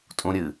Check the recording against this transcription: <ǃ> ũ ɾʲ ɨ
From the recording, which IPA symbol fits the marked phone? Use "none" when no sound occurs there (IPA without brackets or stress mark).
tʼ